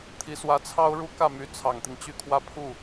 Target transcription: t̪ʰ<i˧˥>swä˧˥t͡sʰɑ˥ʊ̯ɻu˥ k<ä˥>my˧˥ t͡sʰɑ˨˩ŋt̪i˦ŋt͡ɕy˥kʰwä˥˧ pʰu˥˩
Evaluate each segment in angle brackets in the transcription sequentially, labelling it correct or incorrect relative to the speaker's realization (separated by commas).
correct, incorrect